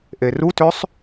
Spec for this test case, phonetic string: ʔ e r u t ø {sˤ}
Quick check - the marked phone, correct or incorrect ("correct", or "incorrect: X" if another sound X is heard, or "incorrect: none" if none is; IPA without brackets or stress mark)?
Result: correct